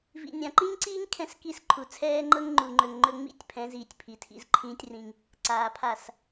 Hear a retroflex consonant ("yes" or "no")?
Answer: no